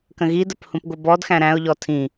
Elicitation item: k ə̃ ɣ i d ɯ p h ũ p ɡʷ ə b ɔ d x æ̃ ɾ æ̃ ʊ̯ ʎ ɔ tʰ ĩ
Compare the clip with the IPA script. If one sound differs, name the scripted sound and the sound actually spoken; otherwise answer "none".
ɯ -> ə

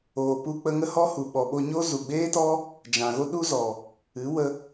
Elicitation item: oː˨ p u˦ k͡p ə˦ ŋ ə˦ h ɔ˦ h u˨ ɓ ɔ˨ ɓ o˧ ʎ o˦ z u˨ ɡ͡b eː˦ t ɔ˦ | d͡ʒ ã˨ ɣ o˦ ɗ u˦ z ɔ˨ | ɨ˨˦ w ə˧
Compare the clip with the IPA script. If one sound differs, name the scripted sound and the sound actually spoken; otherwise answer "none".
ʎ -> ɲ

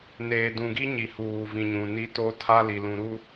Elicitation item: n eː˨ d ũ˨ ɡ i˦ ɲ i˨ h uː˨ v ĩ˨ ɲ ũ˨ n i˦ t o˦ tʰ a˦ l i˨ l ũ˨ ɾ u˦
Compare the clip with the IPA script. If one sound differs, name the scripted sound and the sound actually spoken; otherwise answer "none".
none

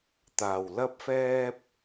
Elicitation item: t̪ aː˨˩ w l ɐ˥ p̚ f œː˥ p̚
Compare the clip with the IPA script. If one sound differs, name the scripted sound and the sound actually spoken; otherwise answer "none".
œː˥ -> ɛː˥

